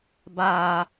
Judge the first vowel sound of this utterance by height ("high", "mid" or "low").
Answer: low